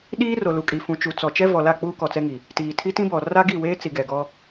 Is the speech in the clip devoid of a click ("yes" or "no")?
yes